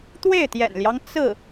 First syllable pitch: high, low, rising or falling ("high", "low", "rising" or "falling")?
falling